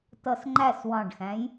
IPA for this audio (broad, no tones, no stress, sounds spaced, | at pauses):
t ʌ s ŋ͡ǃ æ s w ɑ̃ ɖ x æ̃ j